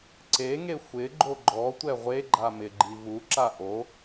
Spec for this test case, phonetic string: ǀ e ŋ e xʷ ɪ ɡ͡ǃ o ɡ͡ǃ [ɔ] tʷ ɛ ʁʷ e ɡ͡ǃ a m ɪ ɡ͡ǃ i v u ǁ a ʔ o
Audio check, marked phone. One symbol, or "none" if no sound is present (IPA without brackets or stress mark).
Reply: ɔ